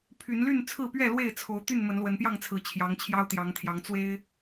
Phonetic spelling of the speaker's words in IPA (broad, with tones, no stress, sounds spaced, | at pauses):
pʰ y˨˦ n l y˥˨ n t͡sʰ ɹ̩˥˨ p ɥ ɛ˥˨ l w e˥˨ ɪ̯ t͡sʰ o˨˦ ʊ̯ t̪ y˥˨ n m ə˨˦ n l w ə˨˦ n p j ɑ˥˨ ŋ t͡sʰ ɹ̩˨˩ t͡ɕʰ j ɑ˨˦ ŋ t͡ɕʰ j ɑ˦ ʊ̯ t̪ j ɑ˨˦ ŋ t̪ʰ j ɑ˨˦ ŋ t͡s w e˦ ɪ̯